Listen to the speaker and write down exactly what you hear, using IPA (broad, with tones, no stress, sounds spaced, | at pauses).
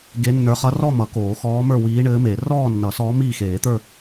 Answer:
ɡ e˧˥ nː ə˞˧˥ χ ʌ˧˥ r ɔ˥˧ m ʌ˨˩˦ k oː˨˩˦ x ɔː˧˥ m ə˞˥˧ w iː˧˥ ɳ ɘː˧˥ m e˨˩˦ r ɔː˥˧ nː ʌ˨˩˦ s ɔː˧˥ m iː˥˧ x eː˨˩˦ t̪ ə˞˥˧